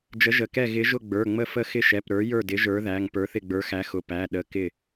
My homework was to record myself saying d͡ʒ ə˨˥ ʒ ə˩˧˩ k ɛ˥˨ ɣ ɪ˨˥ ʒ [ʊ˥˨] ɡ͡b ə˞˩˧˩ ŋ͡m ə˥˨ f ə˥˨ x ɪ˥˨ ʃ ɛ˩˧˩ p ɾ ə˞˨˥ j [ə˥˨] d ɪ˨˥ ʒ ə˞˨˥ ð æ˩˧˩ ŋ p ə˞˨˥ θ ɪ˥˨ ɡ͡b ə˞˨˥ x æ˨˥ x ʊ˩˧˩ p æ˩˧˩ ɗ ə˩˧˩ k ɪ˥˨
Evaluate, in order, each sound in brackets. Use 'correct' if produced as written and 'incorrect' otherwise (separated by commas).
correct, incorrect